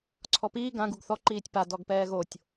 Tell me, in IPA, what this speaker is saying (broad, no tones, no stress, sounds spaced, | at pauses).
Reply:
ǀʰ ɔ p iː ɡ ã ɡ u ɡ θ ɔ ǃ iː tʲ p a d ɔ ɡ p ɛː ɣ o tʲ